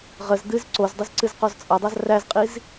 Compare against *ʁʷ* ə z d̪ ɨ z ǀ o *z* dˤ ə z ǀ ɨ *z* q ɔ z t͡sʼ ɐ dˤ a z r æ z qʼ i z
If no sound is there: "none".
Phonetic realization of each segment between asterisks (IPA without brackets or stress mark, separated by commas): ʁ, z, z